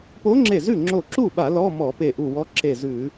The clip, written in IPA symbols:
po˧˥ŋ͡ǁe˧˩ zʉ˥˩ŋ͡ǁo˧˩ǁu˥˩ɓa˧˩˧ lɔ˧˥˧mɔ˧˩˧ pe˧˩ʔu˧˩wɔ˧˥ ǁe˧˩zʉ˧˩˧

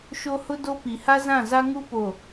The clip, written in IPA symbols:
ʃo˦ hʊ˦do˦ pi˨ ha˦zã˦˨za˦ ŋu˦po˨

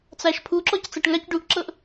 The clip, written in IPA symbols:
t͡saʃpʰuǁɔc t͡saʈŋac ɖuʔǁɤʔ

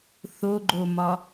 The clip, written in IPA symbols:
θoɡ͡ǃomɒ

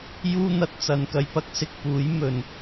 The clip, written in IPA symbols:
juː˥n̪ɐ˧t̚ t͡sɐ˨nkɐ˧jpɐ˥k̚ sɪ˧k̚puː˨˥j mɵ˨n

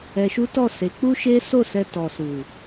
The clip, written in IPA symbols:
ɛ˧ʃu˦ tɔ˦˨ se˨˦ k͡pu˦ʃe˦ so˦˨sɛ˧ tɔ˨su˨

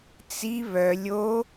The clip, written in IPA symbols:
t͡si βœ lʲo

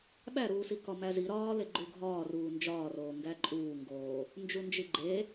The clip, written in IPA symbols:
ɓæɾuːsi kɒmæzi ɾɒːle ɡ͡ǃuɡʱɒːruː nd͡ʒɒː roːŋɡæǃʼuː ŋɡoː | nd͡ʒund͡ʒiɡ͡ǃe

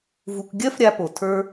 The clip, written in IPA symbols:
vu˧k ɡʲɜ˥fɾʲa˧po˩tʰə˞˧

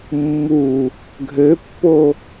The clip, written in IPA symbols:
mːu | ɡʱøpːo

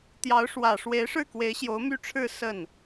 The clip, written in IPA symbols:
t̪jɑ˧˥ʊ̯ʂwä˨˩ ʂwe˧˥ɪ̯ʂɻ̩˥˩kwe˧˥ɪ̯ ɕjo˧˥ʊ̯my˥˧ʈ͡ʂʰɻ̩˥˧ sə˥˩n

